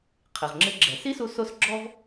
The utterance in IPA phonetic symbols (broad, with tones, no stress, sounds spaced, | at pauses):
qʰ ɪ˩ ʁ ŋ͡ǁ ɪ˧ ɡ͡ǁ ɛ˩ s i˥ s u˧ s o˥ s ɡ͡ǁ ɔ˧ v